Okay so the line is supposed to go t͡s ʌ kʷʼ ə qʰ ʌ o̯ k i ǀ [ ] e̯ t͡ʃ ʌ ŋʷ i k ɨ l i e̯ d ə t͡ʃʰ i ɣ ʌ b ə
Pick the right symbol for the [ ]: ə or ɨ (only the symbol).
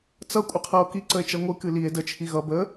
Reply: ə